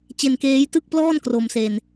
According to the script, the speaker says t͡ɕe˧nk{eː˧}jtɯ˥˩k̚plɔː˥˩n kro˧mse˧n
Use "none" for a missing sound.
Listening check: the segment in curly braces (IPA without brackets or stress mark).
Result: eː˦˥